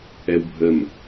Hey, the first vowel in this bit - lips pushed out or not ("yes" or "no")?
no